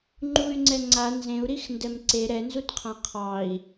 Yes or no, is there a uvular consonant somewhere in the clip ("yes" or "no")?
yes